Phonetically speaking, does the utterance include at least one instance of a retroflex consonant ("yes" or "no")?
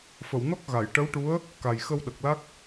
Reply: yes